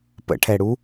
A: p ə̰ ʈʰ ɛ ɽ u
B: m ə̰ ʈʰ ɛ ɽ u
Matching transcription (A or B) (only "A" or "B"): A